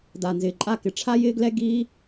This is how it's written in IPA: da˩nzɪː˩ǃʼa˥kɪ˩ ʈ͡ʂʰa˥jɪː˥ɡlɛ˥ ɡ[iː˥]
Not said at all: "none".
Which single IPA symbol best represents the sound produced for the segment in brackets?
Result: iː˥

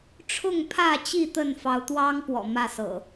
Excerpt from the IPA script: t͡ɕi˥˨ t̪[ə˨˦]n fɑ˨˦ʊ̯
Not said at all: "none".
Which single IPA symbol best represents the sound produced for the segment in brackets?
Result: ə˥˨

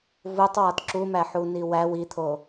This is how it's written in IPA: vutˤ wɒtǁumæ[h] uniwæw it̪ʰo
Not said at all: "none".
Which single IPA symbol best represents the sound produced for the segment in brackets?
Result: ħ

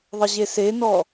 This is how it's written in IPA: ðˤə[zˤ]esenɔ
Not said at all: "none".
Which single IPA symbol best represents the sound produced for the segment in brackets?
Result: ʑ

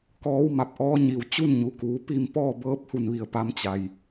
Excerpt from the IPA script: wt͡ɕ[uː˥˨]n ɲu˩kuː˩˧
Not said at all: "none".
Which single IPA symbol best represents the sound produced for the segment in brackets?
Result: u˥˨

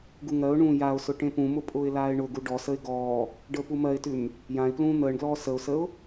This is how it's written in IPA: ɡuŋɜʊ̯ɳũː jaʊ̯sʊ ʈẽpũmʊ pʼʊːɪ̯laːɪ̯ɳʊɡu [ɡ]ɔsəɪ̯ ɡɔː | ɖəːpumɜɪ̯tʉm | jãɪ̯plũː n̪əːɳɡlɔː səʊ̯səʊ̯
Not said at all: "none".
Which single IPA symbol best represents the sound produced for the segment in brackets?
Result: ɖ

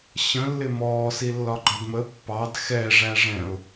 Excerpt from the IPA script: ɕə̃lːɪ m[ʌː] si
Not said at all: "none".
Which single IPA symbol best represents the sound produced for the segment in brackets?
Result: ɔː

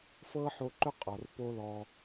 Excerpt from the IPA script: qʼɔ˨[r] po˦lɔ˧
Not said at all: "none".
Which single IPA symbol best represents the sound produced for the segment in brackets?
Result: r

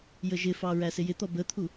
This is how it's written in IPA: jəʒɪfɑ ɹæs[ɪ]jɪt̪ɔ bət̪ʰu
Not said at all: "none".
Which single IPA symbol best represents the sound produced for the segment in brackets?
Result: ɪ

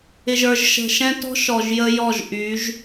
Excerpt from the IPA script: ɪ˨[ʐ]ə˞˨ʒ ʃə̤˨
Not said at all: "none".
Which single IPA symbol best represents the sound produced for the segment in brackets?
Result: ʒ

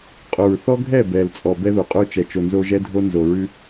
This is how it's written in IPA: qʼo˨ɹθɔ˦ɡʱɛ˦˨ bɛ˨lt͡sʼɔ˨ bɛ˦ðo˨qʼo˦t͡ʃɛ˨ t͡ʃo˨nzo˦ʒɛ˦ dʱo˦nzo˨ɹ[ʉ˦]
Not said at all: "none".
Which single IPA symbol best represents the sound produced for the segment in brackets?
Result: ʉ˦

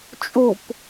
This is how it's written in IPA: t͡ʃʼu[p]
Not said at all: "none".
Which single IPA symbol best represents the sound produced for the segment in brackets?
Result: p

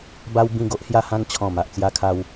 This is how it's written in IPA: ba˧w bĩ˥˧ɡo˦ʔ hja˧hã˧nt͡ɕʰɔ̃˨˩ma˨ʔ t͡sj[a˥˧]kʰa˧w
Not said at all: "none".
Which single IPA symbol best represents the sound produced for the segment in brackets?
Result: a˧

